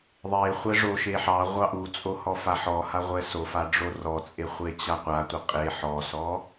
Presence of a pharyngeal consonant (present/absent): present